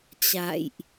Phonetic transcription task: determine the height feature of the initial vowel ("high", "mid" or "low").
low